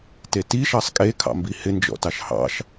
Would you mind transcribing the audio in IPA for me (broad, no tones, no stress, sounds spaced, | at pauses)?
t e t i ʃ ɑ sˤ kʼ e kʰ ɑ̰ m b i h ɪ n d͡ʒ ɔ̰ t ɑ ʃ h ɑ̰ ʃ